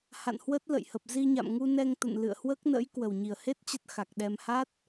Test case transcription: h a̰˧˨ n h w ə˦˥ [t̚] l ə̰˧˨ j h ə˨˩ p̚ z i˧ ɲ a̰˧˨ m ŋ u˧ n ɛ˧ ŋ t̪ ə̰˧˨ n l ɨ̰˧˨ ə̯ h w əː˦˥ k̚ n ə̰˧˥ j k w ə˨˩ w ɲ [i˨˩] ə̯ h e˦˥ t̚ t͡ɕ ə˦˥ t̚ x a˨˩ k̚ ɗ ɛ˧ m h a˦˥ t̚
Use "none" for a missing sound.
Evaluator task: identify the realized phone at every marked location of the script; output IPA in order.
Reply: t̚, i˨˩

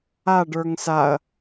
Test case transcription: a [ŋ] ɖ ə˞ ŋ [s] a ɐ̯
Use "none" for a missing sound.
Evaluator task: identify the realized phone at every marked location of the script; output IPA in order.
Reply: none, s

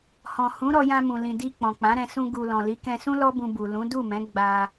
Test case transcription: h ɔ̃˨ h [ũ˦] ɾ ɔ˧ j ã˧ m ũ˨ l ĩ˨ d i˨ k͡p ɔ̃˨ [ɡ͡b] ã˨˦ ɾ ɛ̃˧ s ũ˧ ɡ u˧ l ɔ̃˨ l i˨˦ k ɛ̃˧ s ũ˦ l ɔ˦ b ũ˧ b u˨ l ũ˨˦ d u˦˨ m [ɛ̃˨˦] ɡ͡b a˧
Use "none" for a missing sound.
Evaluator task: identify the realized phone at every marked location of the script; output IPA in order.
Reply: ũ˨˦, k͡p, ɛ̃˨˦

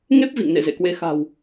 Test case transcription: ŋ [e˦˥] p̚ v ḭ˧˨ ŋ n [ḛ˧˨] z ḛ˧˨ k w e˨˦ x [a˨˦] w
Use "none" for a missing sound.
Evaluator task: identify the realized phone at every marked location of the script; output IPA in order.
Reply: e˦˥, ḛ˧˨, a̤˨˩

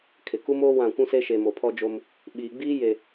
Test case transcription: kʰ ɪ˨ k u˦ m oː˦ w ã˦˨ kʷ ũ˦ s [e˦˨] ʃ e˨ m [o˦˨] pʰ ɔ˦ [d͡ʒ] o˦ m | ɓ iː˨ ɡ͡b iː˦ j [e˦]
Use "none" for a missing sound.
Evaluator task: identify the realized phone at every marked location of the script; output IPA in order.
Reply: e˦, o˨, d͡ʒ, e˨

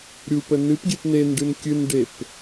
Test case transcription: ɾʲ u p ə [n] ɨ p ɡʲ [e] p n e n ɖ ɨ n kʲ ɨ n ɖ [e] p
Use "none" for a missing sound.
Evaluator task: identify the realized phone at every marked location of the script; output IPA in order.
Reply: n, e, e

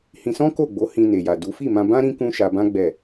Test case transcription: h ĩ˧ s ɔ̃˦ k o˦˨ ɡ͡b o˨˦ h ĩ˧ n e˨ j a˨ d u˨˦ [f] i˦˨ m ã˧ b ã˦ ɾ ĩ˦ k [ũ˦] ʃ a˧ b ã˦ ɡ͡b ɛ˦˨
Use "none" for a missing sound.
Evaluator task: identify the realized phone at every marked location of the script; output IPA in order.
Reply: f, ũ˦

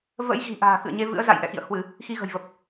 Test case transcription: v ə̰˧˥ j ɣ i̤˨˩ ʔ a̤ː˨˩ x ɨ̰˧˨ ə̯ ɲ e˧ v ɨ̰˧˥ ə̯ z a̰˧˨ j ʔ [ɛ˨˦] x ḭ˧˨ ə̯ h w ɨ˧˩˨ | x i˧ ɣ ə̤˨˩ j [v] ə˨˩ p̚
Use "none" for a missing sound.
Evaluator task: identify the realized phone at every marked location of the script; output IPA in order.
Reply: ɛ̰˧˨, v

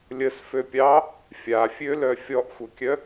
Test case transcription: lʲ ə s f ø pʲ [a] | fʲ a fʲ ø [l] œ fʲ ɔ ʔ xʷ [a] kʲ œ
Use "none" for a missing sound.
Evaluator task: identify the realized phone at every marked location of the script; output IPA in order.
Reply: ɑ, l, ʌ

